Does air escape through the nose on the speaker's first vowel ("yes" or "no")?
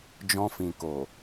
yes